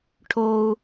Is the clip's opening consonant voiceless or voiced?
voiceless